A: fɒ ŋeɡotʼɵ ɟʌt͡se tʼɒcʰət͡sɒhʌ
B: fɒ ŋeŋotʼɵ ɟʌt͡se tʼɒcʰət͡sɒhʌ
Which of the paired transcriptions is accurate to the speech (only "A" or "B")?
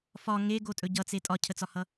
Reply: A